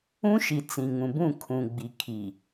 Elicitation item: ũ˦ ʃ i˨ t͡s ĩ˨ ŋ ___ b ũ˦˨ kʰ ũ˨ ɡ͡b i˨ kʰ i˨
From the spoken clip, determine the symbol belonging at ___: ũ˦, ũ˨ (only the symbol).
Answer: ũ˨